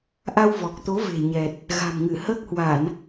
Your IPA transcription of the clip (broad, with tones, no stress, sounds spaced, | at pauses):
ʔ a˧ w v ɔ˨˩ k̚ t̪ o˨˦ v e̤˨˩ ɲ ɛ˨˩ t̚ | ɣ a̤˨˩ m ŋ ɨ˧˩ h əː˦˥ k̚ h w a˧˩˨ n